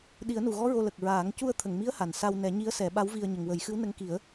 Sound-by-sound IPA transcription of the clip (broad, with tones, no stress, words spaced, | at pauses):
ɗi˨˩˦ə̯nu˨˩ɣɔ˧˥ ɹo˧lə˨˩k̚ɹaː˨˩˦ŋ cu˧ə̯t̪ʰə˨˩˨ŋmi˧˥ə̯ ha˨˩nsa˧w nɛ˨˩˦ ɲi˧˥ə̯sɛ˨˩˦ɓa˧˥wvi˧ə̯ ɲə˨˩ŋwə˨˩˦jxɨ˧˥w nə˧˥ŋki˨˩˦ə̯